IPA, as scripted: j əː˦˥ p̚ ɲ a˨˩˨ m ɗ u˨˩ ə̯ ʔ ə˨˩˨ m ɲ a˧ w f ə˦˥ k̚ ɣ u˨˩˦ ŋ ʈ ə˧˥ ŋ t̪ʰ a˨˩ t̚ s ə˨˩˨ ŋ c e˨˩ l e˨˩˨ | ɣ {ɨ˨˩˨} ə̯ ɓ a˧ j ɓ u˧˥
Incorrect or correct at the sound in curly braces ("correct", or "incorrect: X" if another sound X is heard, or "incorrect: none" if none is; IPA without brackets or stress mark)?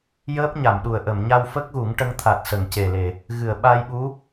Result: correct